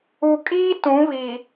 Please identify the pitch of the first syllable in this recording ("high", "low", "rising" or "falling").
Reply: low